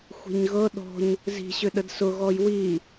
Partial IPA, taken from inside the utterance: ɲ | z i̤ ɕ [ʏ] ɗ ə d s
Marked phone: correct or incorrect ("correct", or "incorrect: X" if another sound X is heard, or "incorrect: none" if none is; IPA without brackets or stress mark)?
correct